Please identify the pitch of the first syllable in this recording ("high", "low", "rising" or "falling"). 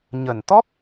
low